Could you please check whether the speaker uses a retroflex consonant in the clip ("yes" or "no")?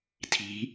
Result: no